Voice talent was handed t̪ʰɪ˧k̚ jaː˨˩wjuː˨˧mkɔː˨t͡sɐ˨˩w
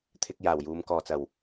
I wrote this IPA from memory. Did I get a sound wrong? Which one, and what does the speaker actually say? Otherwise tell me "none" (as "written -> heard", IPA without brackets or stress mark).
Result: none